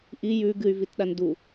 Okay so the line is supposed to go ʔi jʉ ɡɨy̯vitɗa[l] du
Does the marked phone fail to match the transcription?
yes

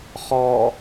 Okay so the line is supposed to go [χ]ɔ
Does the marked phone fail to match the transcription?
no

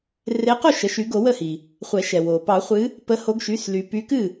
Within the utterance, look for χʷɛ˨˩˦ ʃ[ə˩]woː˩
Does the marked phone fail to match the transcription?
yes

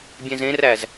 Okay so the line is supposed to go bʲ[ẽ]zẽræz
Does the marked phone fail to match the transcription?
no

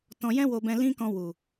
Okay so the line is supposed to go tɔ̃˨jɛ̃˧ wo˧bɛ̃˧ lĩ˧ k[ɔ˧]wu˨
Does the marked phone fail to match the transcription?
yes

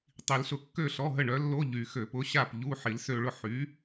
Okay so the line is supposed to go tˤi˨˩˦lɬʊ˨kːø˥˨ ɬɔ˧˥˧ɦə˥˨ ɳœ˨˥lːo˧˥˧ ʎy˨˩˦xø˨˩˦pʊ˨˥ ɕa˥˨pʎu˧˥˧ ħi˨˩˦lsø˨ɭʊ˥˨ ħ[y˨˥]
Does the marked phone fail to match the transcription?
no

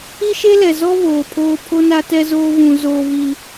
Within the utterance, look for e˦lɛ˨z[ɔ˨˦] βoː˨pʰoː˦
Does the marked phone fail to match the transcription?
yes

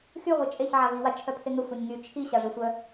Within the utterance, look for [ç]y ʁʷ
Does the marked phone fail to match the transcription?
yes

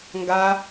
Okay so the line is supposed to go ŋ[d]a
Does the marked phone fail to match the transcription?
yes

